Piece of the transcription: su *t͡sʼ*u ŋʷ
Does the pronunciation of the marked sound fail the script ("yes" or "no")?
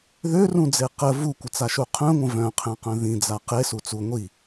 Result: yes